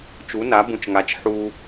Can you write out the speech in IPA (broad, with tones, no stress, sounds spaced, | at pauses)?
t͡ʃ u˩˥ n a˩˥ b ũ˨ t͡ʃ ŋ a˩˥ t͡ʃ ħ u˨